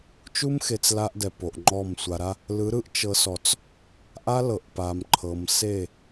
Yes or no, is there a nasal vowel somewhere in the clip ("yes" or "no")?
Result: no